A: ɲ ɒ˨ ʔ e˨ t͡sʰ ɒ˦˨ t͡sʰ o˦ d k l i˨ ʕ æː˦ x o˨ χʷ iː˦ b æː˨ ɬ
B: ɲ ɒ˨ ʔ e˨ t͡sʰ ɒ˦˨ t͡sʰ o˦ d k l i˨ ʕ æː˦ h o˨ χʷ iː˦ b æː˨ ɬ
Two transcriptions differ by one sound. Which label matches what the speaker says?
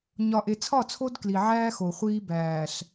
A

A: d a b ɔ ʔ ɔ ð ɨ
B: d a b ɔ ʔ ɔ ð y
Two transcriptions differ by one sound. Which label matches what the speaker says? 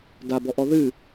A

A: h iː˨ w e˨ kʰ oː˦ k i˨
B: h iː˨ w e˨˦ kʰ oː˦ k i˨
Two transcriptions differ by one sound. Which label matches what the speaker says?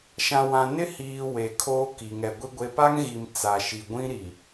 A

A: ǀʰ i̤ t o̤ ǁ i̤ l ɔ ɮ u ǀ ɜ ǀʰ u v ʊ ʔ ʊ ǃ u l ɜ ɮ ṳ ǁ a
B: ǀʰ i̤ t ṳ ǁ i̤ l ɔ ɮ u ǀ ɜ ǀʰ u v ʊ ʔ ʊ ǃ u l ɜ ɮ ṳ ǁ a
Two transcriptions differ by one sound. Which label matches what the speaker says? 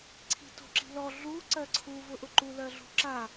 A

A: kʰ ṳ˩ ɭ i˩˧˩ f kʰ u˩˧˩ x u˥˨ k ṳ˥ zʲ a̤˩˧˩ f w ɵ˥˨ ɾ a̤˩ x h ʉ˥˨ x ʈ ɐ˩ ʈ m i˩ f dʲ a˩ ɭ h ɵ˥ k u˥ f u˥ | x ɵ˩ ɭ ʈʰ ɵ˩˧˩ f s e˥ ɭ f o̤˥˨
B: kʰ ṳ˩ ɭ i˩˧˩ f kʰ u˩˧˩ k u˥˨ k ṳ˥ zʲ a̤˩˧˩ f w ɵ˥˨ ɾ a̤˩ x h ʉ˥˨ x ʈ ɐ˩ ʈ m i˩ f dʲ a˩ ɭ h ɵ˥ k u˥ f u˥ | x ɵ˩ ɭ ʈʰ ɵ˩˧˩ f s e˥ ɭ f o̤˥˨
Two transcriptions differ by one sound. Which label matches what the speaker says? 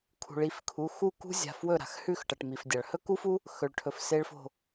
A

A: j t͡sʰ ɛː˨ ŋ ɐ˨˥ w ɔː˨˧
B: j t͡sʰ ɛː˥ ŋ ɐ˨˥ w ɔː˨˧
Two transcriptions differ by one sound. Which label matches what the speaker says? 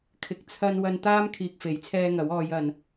B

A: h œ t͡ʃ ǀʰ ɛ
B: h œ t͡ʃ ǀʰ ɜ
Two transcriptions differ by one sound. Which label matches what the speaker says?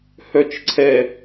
A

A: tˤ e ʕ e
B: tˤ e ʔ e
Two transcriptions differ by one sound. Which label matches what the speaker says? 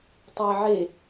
A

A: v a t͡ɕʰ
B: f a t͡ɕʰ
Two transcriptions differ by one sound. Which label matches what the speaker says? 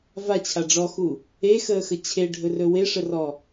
A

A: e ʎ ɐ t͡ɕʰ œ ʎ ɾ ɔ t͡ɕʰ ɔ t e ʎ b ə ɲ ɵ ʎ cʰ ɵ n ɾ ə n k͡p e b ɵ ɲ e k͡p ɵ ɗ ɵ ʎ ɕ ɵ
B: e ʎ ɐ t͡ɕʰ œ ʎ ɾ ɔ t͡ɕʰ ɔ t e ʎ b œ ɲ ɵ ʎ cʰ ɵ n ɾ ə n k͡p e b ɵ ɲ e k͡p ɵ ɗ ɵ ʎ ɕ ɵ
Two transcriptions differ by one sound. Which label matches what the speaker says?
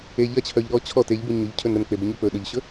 A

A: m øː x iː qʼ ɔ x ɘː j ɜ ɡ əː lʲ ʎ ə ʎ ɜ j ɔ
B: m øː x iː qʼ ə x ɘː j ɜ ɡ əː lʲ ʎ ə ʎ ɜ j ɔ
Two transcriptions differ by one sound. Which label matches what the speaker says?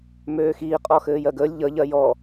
A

